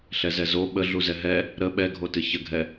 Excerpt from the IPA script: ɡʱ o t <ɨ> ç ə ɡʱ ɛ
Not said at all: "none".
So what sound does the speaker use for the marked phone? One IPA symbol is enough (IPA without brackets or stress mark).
ɨ